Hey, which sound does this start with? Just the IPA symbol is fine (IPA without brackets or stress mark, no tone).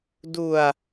d